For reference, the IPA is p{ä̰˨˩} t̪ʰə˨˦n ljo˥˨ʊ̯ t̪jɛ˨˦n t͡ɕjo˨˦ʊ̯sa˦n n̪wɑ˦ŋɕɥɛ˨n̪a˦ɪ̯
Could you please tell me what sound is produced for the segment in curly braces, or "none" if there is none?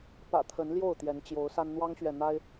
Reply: ä̰˨˩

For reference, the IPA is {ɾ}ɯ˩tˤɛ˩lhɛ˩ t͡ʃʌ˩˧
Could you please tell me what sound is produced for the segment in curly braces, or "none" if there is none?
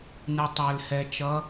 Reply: n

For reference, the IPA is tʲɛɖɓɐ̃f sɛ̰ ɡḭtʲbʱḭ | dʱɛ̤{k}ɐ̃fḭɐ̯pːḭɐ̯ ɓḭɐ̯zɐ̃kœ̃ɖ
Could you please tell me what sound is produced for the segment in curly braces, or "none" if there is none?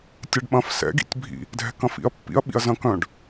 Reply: k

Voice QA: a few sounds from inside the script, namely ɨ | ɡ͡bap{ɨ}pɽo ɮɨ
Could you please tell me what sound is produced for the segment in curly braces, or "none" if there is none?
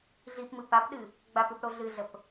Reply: ɨ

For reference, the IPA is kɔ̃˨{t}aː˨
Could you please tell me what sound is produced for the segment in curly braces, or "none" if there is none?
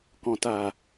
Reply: t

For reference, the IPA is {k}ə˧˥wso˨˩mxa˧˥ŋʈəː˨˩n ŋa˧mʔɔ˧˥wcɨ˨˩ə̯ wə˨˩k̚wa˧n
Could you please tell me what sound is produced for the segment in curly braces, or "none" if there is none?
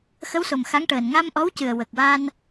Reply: x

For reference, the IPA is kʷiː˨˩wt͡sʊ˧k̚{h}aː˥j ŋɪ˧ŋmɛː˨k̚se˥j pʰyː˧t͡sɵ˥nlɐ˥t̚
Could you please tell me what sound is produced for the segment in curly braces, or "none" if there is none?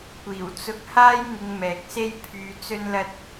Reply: h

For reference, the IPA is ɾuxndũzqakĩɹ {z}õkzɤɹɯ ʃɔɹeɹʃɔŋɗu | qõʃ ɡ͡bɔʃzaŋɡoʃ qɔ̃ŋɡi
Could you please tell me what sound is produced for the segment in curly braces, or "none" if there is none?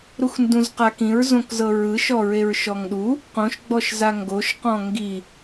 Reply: z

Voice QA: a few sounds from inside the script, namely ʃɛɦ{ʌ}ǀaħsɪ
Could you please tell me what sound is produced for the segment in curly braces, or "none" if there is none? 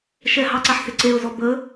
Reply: ɑ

